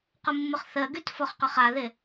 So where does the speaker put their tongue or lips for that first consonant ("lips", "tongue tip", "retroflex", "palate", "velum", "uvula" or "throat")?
uvula